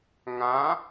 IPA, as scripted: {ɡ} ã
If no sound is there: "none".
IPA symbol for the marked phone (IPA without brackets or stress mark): ŋ